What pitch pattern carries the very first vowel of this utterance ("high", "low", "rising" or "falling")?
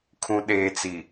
low